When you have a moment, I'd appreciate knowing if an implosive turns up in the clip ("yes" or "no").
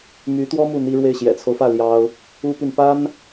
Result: no